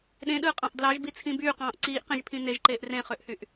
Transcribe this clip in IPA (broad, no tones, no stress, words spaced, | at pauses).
ɗẽɗɯːqʼɑ̃ʔ dlɑʒbit͡sʰĩ byːqɑ̃ːʔ ǀiːʔqẽʒpʰĩ neʒǃeːʔ rẽχøʔhyʔ